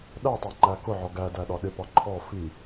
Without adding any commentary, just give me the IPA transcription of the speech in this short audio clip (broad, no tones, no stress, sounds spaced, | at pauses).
ɗ æ tˤ æ ŋ͡ǃ æ k ʊ ʕ ɔ ɡ æ d æ ɗ ɒ ɗ ɪ p ɒ ǃʰ ɔ f i